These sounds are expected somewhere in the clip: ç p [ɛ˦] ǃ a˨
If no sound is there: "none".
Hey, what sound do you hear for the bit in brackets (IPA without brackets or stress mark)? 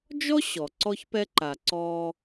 ɛ˦